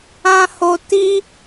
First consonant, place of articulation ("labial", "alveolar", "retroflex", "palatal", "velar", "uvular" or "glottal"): glottal